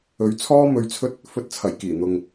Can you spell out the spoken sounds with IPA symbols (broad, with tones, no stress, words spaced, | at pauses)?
ɵ˨˧ɥt͡sʰɔː˥mɵ˧ɥt͡sʰɵ˥t̚ | fɵ˧t̚t͡sʰɐ˨˩jkiː˨˩n̪ʊ˨ŋ